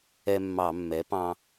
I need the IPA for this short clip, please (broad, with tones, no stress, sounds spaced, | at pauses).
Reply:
ɛ˦ mː ɑ˧˩˧ mː ɛ˩˥ p ɑ̃˦